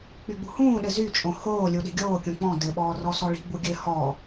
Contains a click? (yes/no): no